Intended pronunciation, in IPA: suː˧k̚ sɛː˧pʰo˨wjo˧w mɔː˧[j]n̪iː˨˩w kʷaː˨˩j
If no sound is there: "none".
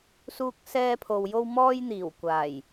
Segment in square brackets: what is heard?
j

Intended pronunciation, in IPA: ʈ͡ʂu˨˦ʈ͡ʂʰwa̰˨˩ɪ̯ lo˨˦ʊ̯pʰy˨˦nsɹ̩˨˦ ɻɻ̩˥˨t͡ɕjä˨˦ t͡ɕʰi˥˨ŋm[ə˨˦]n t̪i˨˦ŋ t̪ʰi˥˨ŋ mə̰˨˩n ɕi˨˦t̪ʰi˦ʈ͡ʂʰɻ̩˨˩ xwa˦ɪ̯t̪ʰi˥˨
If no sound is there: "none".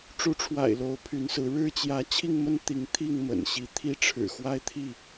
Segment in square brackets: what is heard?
ə˦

